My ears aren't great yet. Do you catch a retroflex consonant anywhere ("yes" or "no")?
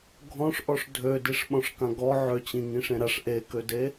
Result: yes